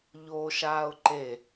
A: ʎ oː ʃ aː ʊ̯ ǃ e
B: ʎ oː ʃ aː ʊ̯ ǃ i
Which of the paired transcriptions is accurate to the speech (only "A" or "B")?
A